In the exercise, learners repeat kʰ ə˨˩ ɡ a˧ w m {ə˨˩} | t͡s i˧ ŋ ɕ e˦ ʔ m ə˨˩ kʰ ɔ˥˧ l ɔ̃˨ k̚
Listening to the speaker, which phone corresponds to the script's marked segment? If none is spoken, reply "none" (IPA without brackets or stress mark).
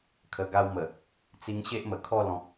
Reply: ə˨˩